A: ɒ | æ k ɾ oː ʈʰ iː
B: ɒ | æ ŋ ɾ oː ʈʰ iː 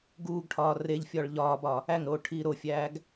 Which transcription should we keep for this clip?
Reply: B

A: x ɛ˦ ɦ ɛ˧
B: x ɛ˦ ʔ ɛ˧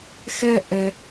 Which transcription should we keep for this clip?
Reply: B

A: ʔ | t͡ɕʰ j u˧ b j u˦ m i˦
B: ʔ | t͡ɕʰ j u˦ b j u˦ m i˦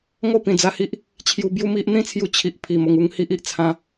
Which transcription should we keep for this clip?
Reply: A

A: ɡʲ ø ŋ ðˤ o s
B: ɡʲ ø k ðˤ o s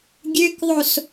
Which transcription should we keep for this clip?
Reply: B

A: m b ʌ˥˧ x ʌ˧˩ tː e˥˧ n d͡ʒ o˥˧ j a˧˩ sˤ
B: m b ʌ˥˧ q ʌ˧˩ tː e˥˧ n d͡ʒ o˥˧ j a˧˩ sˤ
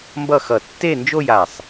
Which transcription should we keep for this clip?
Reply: A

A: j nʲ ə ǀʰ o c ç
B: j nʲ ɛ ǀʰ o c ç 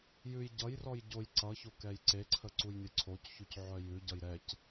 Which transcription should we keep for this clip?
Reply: A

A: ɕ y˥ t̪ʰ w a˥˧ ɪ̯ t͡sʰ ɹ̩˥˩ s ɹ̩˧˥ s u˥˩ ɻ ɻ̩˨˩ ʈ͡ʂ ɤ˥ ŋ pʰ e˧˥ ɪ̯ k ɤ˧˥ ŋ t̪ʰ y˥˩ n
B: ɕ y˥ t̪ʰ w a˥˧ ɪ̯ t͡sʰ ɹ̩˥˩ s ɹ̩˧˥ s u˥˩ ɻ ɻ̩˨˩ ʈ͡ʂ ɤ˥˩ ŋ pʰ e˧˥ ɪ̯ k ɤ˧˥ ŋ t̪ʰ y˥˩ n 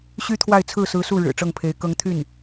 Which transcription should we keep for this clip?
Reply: B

